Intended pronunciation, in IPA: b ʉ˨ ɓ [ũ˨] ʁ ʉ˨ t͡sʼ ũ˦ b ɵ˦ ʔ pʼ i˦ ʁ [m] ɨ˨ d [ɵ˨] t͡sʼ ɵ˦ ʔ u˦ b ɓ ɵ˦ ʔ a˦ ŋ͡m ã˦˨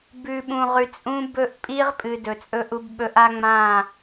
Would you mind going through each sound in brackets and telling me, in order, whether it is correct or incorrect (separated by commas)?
correct, incorrect, correct